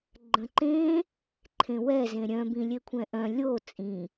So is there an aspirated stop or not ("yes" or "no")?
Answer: yes